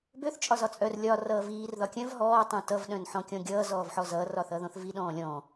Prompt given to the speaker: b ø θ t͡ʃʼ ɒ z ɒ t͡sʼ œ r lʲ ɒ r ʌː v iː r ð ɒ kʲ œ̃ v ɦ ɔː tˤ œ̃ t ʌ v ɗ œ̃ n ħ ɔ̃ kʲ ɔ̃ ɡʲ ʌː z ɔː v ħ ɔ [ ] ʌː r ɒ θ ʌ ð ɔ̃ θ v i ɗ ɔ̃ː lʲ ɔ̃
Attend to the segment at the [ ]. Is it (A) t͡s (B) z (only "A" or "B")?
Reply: B